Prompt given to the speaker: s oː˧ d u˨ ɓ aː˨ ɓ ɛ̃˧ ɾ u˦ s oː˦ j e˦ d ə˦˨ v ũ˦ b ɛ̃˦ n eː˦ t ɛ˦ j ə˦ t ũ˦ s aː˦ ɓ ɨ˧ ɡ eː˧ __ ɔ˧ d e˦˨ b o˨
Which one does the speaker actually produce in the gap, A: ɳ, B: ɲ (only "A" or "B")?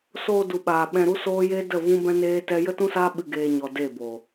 B